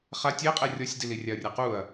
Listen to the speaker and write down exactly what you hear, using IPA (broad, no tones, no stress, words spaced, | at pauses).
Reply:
χa tʲeqʼɛ rʲɔsʲdi lirʲaɐ̯rʲaquɐ̯